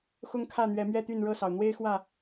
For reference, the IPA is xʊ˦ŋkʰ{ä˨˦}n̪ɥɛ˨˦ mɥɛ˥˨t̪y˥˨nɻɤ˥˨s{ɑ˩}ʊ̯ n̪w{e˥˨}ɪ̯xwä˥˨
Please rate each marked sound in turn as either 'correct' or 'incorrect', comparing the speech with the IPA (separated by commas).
incorrect, correct, incorrect